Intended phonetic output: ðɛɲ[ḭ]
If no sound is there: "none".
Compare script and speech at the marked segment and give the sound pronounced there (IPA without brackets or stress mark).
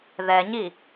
i